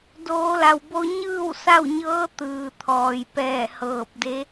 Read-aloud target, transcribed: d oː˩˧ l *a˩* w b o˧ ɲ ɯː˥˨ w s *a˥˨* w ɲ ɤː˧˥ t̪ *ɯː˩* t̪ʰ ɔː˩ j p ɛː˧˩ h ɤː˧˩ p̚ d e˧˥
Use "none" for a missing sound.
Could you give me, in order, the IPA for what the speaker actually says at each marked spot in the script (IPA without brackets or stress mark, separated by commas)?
a˩, a˥˨, ɯː˩